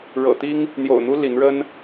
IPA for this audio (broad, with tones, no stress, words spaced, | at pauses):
ɻɤ̰˨˩t̪i˦ŋ | n̪jo̰˨˩ʊ̯n̪u˦ li˨˦nɻə˦n